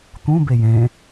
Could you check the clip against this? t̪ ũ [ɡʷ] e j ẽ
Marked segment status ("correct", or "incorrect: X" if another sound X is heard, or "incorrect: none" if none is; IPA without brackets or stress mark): incorrect: b